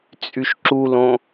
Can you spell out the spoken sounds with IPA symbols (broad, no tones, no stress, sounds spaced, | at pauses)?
t͡sʼ y ʃ ǁ u l õ